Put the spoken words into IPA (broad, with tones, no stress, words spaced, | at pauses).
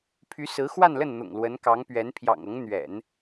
pʰy˧˥sɹ̩˧˥ xwa˥˧nlə˥˩nn̪ʊ̰˨˩ŋ lwə˧˥nkɑ˧˥ŋpɥɛ˧˥n pʰjɑ̰˨˩ŋɤ˧˥ŋ n̪ɥɛ̰˨˩˦n